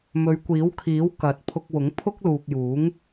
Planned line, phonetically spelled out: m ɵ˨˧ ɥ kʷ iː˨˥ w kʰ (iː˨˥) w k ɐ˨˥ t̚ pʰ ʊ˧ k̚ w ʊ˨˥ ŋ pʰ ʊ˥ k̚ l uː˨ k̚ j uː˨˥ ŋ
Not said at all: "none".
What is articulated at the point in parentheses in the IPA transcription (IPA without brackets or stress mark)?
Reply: iː˨˥